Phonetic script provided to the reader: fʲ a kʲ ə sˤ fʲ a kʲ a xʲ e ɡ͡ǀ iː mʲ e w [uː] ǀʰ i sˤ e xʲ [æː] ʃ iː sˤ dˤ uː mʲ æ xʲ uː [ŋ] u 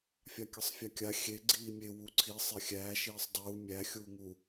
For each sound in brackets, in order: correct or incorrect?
incorrect: u, correct, correct

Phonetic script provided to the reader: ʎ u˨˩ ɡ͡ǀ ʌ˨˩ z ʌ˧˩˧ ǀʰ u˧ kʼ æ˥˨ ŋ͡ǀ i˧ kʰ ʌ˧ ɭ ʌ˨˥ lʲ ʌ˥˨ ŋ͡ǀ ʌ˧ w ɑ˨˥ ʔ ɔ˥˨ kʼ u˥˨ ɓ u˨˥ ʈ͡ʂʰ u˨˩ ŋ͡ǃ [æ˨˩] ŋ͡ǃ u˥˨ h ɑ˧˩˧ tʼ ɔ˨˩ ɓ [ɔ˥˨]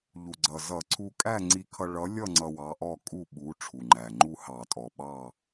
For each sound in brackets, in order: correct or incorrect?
correct, incorrect: ɑ˥˨

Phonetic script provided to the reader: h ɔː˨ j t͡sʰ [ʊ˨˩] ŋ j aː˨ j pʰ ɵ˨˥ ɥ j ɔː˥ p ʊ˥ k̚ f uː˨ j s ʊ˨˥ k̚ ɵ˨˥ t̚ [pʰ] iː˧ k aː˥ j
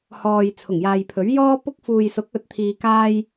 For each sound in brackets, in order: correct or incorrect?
correct, incorrect: t̪ʰ

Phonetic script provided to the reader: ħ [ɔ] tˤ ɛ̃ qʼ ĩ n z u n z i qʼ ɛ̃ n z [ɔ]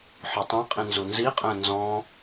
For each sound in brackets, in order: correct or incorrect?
incorrect: ɵ, incorrect: ɔ̃

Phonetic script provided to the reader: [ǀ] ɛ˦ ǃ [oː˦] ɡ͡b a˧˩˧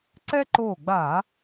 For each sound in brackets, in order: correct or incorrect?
correct, incorrect: oː˧˩

